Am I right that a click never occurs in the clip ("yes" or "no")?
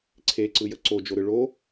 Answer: no